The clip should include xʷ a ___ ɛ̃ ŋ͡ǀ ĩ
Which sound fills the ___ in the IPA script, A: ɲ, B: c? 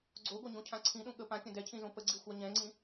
A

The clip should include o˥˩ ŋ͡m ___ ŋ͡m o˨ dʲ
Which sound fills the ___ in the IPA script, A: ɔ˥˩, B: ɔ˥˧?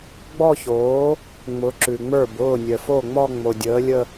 B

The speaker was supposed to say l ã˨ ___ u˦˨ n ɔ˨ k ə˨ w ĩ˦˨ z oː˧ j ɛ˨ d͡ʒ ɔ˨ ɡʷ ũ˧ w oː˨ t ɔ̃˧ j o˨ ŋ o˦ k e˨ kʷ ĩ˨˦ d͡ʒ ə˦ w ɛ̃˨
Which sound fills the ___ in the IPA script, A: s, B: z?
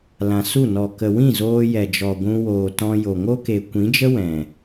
A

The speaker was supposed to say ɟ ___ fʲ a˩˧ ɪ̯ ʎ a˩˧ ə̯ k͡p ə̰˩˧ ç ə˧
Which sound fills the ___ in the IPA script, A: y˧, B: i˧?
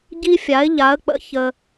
B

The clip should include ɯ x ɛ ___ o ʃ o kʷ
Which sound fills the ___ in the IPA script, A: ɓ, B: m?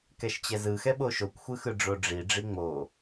A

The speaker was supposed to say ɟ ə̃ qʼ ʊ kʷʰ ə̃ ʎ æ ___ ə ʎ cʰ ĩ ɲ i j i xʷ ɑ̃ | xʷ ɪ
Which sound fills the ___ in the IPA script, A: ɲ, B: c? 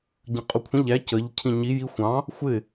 B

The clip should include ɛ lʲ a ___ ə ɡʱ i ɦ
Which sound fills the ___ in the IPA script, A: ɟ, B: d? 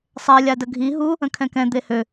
B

